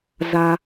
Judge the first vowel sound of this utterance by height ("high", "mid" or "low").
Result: low